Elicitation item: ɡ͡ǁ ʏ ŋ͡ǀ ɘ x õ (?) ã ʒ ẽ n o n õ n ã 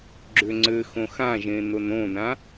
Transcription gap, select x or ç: x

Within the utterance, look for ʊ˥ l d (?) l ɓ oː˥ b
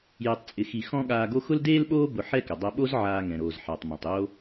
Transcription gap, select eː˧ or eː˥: eː˥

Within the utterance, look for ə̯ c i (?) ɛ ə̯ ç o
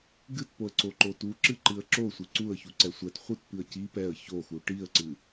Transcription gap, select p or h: p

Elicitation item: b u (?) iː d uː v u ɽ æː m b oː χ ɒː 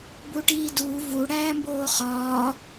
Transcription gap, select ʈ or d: ʈ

